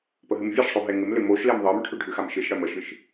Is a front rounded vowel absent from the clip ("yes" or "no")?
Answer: no